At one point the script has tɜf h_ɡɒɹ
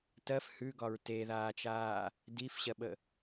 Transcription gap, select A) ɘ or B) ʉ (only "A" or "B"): B